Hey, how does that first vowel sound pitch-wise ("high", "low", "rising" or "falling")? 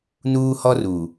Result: high